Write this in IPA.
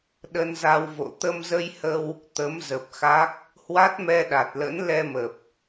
ɗ ə˧ n z a˧ w v o̰˧˨ t̪ ə˧ m z ə˧ j h ə˧ w | t̪ ə˨˦ m z ə˨˩ p̚ x a˦˥ k̚ | h w a˦˥ t̚ m ɛ˧ ɗ a˨˩ t̚ l ə̰˧˥ n l ɛ˧ m ə˨˩ p̚

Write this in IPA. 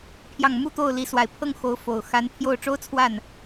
pʰ j ɑ˥˩ ŋ m u˥ t̪ o˥˩ ʊ̯ l i˧˥ s w a˨˩ ɪ̯ pʰ ɤ˥˩ ŋ x o˧˥ ʊ̯ f o˨˩ ʊ̯ x a˧˥ n pʰ j o˥˩ ʊ̯ ʈ͡ʂ o˥ ʊ̯ t͡sʰ w a˥˩ n

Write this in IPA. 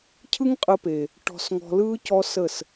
cʰ ɯ˦ ŋ qʼ ə˧ p e˨ | ʈ ɔ̤˧ s ŋ ɔ̤˧ l ɯː˦ c ɔ˦ s ə˦˨ s

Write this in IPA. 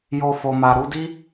j o˧ f o˨ m a˨ ɾ u˨˦ d i˦

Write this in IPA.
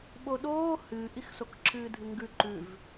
ɓ o ɗ oː h ɨː ʔ i x s o k ǁʰ ɨː dʱ ɨ ŋ ɡ ʉ ǃ ʉ v

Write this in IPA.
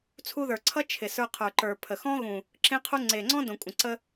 t͡sʰ u˧ ð ə˞˨ ǀʰ ʌ˦ t͡ʃʰ ɪ˨ s ə˞˧ qʰ ə˞˨ ǃ ə˞˨ pʰ ə˨ x ɔ̃˦ ɣ ũ˨ | ǁ ẽ˦ qʰ u˦ ŋ͡ǀ e˨ ŋ͡ǀ ɔ̃˦ d õ˨ kʷʼ ə̃˨ ǀ ə˧

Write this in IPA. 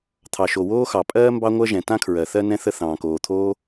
t̪ʰ ɑ˩ ʃ o˩ w oː˥ x ɑ˩ pʼ ɜː˥ m b ɑ˥ ŋʷ ɜ˥ ʒ ɛ̃˩ t ã˥ kʰ ɹ ɜ˩ θ ɜ˥ n ɛ̃˥ θ ə˥ θ ɑ̃ː˩ k oː˩ t̪ʰ oː˥

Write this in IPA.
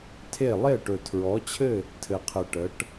tʰ e˥˨ lˠ e˥˨ ʈ ɵ˨ tʰ ɹ ɔ˨˥ t͡ɕʰ ɘ˥˨ | tʰ ɘ˨ qʰ ɘ˨ ʈ ə˨˥ ʈ

